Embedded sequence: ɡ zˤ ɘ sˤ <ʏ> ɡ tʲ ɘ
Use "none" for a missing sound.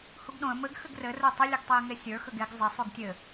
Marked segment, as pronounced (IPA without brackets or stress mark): u